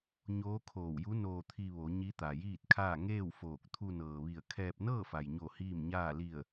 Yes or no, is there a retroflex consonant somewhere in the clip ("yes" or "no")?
no